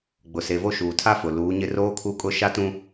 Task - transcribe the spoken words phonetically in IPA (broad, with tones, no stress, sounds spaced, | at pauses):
ɡ͡b ʊ˨ s e˨ v o˦ ʃ uː˨ tʰ a˦ f ʊ˨ l uː˨˦ ɲ ɪ˦ r oː˦ kʰ u˦˨ kʼ ʊ˦ ʃ a˦ t ũ˦